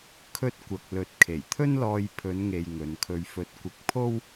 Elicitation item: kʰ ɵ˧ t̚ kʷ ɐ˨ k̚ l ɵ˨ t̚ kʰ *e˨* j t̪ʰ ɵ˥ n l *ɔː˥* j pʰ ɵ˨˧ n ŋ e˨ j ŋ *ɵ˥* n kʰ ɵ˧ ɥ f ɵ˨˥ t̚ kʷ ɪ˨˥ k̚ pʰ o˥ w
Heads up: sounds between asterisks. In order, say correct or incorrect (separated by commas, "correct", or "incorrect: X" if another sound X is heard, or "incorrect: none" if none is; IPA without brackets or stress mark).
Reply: incorrect: e˨˩, incorrect: ɔː˧, incorrect: ɵ˨˧